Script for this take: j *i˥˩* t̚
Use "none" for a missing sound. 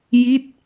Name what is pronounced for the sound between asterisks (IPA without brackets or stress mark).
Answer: i˥˩